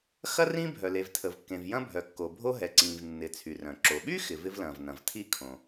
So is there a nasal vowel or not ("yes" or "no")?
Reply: yes